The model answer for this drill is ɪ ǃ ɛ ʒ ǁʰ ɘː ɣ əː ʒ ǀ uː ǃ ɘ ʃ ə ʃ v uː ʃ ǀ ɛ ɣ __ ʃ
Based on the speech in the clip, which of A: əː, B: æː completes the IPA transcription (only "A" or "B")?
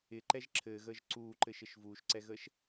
A